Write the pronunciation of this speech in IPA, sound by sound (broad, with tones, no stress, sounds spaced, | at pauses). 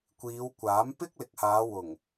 kʷ iː˨˧ w kʷ aː˨˥ m p ɪ˥ k̚ l ɪ˨ k̚ h aː˨˧ w ʊ˨˩ ŋ